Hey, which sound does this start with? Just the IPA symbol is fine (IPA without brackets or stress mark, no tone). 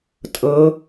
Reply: tʼ